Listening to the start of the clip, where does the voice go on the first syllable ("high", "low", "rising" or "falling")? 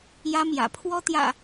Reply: high